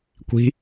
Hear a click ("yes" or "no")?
no